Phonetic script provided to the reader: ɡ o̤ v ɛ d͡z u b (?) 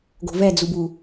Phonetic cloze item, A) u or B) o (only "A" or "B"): A